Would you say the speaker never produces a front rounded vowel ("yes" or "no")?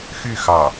no